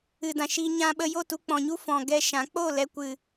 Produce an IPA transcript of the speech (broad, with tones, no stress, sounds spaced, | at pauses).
ɨ˨ d ã˨ ʃ iː˧ ɲ ã˧ ɓ ə˧ j o˦˨ t u˧ k͡p ɔ̃˨ ɲ u˦ f ɔ̃˨ ɡ ɛ˧ ʃ ã˨˦ k͡p o˦˨ l ɛ˧ kʷ ɨ˨